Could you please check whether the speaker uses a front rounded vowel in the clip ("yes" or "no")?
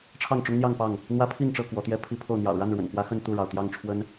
no